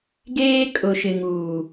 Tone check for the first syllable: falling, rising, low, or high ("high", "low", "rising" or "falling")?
high